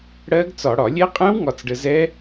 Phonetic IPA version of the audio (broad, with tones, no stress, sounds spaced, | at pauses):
ɽ ɜ˦˥ ɡ t͡s ɒ˧˩˧ ɽ ɒ˧˩˧ lʲ ɛ˦˥ qʼ ɛ̃˦˥ w ŋ ɒ˧ t͡s ɖ ə˧ z ɛ˦˥